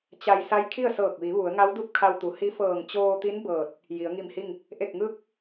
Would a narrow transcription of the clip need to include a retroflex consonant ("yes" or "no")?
no